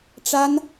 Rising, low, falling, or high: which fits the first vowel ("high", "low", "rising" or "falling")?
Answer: high